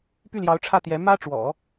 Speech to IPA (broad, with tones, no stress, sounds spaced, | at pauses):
p y˥˩ l j ɑ˧˥ ʊ̯ ʈ͡ʂʰ ä˥˩ t̪ j ɛ˧˥ m ä˥ ʈ͡ʂ w ɔ̰˨˩˦